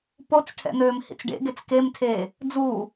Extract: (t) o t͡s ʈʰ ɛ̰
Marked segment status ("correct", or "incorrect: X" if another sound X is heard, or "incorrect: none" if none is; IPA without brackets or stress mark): incorrect: p